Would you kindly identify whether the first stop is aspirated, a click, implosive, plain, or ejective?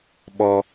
implosive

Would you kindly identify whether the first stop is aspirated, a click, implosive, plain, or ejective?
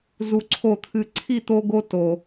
click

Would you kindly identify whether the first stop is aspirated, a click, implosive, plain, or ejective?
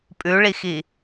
ejective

